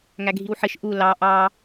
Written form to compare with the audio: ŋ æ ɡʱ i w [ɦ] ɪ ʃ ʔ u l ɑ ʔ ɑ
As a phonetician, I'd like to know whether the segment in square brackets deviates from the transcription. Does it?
yes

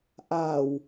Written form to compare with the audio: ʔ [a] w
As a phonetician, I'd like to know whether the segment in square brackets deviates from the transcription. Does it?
no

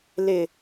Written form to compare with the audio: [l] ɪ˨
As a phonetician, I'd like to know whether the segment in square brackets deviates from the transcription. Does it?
no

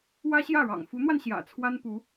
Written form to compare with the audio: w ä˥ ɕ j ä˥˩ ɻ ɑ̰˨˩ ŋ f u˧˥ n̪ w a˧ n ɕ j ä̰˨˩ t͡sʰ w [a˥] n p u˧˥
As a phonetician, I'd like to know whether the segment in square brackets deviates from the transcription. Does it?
no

